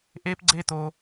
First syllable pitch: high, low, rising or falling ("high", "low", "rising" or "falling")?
high